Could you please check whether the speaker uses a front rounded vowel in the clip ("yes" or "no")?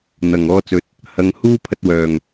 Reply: yes